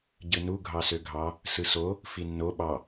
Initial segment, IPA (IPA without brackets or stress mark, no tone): ɟ